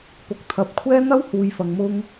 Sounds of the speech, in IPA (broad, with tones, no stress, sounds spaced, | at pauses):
p ʊ˨ k̚ t̪ʰ ɐ˨˥ p̚ kʷʰ ɛː˥ n̪ ɐ˥ w h uː˨ j f ɐ˨ ŋ m ʊ˧ ŋ